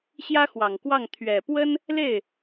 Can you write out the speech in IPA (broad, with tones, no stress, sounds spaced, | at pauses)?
ɕ j ä˥ x w ɑ˨˩ ŋ k w ɑ˥˩ ŋ t̪ʰ ɥ ɛ˨˩ p w ə˥ n | l e˥˩ ɪ̯